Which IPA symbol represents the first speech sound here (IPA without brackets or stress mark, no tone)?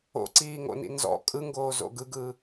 o̰